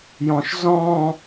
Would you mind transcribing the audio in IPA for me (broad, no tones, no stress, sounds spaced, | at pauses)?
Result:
j ɔ̃ ʃ z ɔ̃ː